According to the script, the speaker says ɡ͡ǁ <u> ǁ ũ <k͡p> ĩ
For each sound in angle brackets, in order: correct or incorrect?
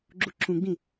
correct, incorrect

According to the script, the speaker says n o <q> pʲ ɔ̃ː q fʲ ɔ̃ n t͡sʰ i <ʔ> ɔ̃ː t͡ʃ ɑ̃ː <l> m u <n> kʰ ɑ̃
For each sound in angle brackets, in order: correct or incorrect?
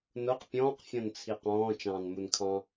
correct, incorrect, incorrect, correct

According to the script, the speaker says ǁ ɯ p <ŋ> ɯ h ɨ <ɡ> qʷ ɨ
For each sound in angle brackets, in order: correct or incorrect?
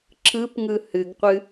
correct, correct

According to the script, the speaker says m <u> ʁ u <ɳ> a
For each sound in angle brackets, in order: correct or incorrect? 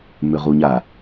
incorrect, incorrect

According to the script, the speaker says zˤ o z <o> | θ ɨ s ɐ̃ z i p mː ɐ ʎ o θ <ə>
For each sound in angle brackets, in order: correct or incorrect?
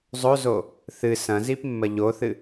correct, incorrect

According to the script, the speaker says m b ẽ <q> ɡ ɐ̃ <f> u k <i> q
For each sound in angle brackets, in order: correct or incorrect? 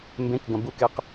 incorrect, incorrect, incorrect

